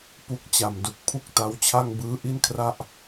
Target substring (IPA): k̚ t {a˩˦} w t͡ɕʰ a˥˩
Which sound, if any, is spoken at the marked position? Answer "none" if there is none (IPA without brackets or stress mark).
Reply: a˦˥